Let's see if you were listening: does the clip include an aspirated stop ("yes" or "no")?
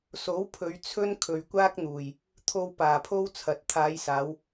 yes